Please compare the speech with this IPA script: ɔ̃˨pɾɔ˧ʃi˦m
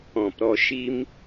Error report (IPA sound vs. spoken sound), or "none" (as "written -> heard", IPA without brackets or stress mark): none